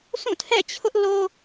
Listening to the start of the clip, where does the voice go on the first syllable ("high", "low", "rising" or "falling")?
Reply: falling